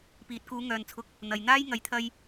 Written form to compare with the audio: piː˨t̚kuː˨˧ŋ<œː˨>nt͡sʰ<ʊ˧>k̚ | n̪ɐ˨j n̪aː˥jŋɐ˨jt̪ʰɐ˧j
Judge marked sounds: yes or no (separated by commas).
yes, no